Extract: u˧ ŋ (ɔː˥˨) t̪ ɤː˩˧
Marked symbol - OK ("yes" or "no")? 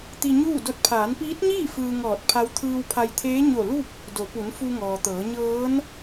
no